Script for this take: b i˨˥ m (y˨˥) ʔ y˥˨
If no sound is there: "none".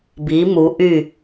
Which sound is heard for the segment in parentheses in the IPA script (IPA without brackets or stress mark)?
u˨˥